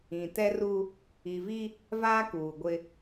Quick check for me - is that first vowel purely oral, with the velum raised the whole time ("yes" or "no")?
no